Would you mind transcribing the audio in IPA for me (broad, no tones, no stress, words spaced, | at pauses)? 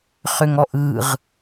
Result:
χʏŋɔʔɯʁ